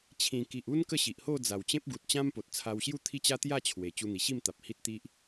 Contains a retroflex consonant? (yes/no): no